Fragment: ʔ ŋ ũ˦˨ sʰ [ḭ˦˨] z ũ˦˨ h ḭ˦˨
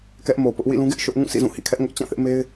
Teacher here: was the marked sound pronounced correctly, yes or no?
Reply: yes